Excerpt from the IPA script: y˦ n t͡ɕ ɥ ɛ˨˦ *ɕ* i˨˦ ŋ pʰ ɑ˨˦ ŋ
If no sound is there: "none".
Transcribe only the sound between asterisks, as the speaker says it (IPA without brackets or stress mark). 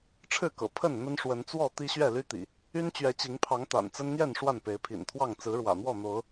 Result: t͡ɕ